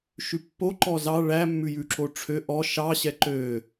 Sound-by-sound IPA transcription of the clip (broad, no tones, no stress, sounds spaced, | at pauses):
ʃ ʉ pː o ǃ ɔ z ɑ ɭ æ mː ʉ j ʉ ǁ o ʈ͡ʂʰ ø ʔ ɔ ʃ ɑ ɕ ɛ ǃ ø